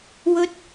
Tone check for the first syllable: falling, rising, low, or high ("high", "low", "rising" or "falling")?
high